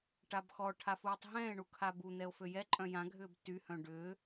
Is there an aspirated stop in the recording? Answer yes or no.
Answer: yes